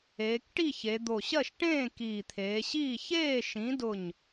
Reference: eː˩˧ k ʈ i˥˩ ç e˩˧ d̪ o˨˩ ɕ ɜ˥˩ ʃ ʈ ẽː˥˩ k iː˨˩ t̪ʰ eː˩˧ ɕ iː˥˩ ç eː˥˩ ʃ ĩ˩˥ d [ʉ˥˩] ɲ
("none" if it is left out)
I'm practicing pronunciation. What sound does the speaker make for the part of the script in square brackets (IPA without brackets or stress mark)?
ʊ˥˩